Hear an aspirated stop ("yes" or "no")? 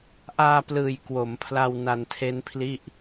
yes